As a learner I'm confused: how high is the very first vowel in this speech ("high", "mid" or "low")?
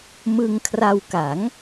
high